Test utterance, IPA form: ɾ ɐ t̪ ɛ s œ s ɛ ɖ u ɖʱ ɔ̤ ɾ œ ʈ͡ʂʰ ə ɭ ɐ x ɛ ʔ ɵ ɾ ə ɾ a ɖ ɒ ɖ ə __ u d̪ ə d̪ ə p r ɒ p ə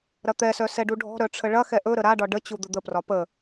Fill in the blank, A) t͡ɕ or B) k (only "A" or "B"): A